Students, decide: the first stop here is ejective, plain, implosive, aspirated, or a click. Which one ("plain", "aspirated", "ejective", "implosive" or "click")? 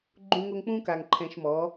click